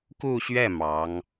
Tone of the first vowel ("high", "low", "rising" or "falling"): falling